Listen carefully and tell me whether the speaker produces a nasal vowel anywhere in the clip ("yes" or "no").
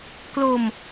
no